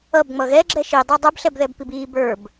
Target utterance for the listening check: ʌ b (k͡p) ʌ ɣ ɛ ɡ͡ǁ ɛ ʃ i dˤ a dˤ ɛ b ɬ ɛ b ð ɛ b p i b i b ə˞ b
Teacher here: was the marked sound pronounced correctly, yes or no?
no